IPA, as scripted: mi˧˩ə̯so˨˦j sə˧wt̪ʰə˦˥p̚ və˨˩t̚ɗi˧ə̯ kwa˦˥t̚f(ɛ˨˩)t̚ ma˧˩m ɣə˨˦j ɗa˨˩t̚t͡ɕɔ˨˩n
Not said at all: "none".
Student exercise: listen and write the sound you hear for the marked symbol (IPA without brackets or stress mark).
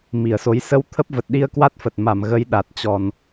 ə˨˩